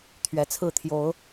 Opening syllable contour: rising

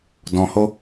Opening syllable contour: low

